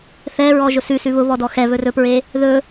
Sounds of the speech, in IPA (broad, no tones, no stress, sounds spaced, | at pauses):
θ ɛ ɹ ɔ ʒ ʊ s ʉ s ʉ β ʊ β ɔ d ɔ x ɛ β ɵ r ɵ p ɹ e | ð ɵ